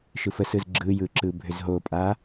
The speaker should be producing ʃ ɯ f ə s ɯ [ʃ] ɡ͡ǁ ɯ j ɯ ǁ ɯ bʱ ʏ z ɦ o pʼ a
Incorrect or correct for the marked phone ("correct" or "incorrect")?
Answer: incorrect